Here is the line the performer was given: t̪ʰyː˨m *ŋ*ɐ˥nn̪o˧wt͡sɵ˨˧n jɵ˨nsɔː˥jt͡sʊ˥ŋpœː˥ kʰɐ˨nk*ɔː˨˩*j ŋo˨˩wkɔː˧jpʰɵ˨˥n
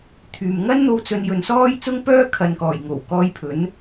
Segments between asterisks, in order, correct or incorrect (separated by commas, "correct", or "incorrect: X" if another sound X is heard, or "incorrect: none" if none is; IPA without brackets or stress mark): correct, correct